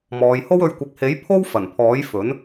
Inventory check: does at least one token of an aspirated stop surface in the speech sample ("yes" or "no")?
yes